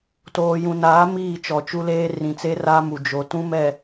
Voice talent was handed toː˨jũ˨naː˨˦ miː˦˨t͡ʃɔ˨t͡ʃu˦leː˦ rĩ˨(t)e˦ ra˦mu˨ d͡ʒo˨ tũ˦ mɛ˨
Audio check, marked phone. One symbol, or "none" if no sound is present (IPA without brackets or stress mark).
t͡s